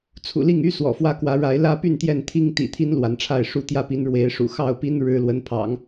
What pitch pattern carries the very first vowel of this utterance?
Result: low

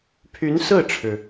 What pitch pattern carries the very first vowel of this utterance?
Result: rising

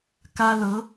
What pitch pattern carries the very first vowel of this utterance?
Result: high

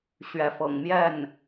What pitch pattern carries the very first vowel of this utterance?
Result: rising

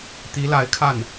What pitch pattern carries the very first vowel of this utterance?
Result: rising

